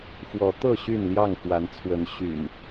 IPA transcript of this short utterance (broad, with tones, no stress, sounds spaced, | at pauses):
f w ɔ˨˦ t̪ ɤ˥˨ ɕ y˥˨ n l j ɑ˥˨ ŋ f w a˨˦ n t͡sʰ w ə˨˦ n ɕ y̰˨˩ n